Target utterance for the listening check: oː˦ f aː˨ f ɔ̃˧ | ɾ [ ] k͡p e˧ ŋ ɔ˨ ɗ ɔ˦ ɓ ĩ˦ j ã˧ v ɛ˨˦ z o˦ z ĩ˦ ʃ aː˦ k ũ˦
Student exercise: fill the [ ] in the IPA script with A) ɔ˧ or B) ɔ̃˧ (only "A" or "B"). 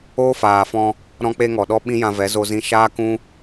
B